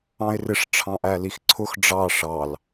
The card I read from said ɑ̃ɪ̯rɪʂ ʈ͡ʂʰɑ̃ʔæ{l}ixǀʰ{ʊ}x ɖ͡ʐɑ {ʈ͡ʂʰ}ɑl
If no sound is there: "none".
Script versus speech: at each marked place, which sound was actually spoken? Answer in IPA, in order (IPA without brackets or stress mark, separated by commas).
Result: l, ʊ, ʂ